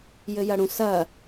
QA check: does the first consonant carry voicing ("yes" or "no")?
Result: yes